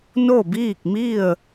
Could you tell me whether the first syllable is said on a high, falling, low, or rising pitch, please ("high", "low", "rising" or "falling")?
falling